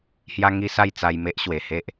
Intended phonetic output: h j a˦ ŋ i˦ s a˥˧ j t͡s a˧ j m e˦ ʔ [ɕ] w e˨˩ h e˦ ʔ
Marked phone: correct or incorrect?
correct